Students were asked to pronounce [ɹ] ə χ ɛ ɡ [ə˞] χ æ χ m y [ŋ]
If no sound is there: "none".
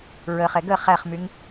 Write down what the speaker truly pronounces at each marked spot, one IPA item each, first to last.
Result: ɹ, ə, ŋ

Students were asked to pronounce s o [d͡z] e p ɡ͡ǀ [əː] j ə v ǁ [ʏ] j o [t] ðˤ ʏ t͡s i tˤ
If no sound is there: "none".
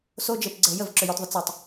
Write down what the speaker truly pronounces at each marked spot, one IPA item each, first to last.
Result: d͡ʒ, əː, ʏ, t

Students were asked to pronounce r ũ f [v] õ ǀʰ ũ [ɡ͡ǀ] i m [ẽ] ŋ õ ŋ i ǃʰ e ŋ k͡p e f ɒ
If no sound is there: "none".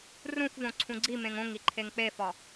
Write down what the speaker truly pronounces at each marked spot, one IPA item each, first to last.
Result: v, ɡ͡ǀ, ẽ

